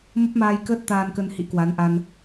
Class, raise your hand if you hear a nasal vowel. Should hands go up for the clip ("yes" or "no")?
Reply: no